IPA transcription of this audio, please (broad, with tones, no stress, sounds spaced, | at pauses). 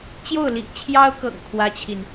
t͡ɕ j o˥˩ ʊ̯ l ḭ˨˩ ŋ t͡ɕʰ j ɑ˥ ʊ̯ k ɤ̰˨˩ ŋ kʰ w ä˥ t͡ɕʰ i˨ n